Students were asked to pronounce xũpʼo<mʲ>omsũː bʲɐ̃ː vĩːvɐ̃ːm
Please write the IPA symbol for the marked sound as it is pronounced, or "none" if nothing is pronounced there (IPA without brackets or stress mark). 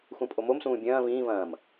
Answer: m